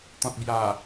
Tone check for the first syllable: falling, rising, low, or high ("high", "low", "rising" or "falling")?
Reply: low